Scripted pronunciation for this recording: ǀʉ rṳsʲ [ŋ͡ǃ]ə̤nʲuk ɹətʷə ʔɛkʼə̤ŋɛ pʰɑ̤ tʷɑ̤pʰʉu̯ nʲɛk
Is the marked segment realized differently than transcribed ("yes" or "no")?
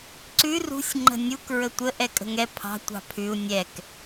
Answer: no